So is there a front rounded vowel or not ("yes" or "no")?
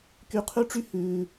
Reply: yes